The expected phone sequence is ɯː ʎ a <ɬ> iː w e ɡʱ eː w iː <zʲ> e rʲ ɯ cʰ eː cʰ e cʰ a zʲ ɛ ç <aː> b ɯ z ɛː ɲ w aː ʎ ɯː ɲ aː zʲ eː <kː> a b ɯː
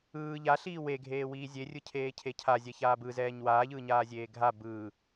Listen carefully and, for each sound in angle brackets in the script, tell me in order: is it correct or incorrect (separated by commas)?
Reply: correct, correct, correct, incorrect